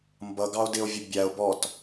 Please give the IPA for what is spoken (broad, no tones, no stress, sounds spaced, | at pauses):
m b ʌ ɡ ɑ o̯ d ɪ o̯ vʲ ʊ bʲ æ o̯ b ɔ t